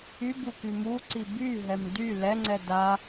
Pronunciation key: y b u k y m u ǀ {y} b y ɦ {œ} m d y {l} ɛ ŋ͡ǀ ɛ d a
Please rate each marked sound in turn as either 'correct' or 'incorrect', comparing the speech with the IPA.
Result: incorrect, incorrect, correct

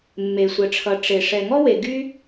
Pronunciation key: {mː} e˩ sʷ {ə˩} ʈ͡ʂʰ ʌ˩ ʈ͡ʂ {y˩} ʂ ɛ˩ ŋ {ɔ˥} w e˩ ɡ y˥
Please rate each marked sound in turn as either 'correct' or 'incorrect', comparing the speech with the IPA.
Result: correct, correct, incorrect, correct

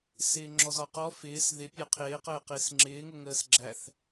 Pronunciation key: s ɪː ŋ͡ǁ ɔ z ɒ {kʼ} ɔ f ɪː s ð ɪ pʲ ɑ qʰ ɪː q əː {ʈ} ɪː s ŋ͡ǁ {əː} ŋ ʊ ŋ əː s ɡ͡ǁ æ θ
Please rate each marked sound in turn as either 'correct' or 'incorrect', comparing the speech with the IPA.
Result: incorrect, incorrect, incorrect

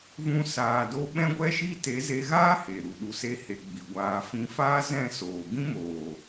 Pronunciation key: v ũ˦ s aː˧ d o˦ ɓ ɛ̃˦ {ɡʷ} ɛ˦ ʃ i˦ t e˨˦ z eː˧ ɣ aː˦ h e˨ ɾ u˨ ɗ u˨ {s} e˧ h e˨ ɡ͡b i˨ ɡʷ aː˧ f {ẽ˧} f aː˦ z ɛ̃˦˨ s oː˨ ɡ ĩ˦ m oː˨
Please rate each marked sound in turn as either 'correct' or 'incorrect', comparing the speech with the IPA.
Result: correct, correct, incorrect

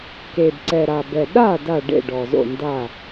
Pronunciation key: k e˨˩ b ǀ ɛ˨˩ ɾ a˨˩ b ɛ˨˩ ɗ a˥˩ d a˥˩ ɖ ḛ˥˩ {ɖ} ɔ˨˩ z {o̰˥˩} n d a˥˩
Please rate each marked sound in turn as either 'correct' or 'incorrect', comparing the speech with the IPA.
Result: correct, correct

